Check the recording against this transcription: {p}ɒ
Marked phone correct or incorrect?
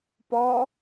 correct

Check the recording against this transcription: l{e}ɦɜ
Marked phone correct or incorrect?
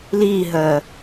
incorrect: i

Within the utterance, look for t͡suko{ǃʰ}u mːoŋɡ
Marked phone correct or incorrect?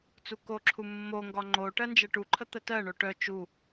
incorrect: ǁʰ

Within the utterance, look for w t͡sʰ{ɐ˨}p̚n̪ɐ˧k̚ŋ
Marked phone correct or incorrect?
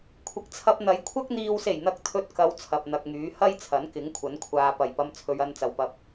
correct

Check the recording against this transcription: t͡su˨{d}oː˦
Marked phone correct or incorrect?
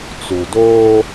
correct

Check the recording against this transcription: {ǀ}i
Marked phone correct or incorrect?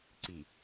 correct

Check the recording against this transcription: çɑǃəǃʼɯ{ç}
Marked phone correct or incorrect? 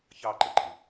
incorrect: none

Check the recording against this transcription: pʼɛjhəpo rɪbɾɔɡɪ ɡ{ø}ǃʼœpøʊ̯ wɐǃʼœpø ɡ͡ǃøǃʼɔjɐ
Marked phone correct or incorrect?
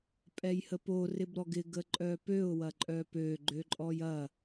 incorrect: ə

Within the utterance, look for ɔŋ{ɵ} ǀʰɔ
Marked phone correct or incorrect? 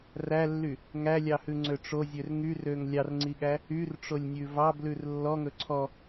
correct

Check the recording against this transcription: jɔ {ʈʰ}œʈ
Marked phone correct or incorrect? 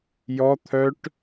incorrect: t̪ʰ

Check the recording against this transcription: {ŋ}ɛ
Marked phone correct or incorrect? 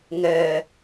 correct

